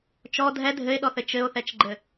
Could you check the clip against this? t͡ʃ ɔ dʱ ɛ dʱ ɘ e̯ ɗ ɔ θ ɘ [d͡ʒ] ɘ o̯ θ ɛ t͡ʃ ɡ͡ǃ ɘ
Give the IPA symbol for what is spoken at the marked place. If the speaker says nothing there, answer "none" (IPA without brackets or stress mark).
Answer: t͡ʃ